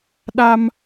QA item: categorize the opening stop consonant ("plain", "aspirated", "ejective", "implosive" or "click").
implosive